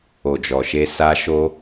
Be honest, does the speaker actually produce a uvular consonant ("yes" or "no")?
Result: no